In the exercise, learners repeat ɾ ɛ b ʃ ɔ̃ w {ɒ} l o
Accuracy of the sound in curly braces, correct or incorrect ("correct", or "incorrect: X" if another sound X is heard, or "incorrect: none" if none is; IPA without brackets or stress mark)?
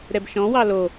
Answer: incorrect: ɑ